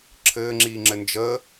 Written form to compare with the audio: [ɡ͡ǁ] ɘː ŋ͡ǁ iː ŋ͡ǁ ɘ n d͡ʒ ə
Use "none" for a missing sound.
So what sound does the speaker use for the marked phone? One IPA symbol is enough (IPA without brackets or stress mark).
ǁʰ